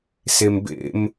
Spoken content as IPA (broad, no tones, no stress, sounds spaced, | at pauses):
s e m b ḛ m